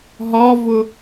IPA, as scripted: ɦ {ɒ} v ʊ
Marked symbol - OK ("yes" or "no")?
yes